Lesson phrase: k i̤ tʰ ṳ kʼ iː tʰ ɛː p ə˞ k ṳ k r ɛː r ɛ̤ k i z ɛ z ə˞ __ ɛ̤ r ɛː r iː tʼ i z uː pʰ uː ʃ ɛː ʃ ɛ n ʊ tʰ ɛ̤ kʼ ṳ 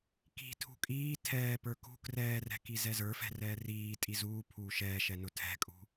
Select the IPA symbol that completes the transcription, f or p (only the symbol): f